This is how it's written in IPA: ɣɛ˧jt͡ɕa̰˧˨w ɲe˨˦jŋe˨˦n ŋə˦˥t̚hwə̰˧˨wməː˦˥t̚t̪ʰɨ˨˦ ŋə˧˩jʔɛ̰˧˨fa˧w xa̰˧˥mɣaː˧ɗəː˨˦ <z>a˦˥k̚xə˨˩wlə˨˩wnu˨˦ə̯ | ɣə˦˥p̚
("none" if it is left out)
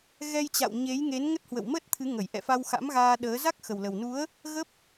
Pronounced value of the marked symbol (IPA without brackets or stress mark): z